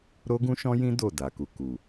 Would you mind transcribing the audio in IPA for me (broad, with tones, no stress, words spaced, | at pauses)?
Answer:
ɾo˦ɡũ˦ʃɔ̃˦jĩ˦ do˦˨da˨ku˨ ku˨